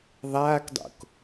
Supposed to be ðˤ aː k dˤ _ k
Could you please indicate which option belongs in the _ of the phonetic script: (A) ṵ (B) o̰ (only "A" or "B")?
B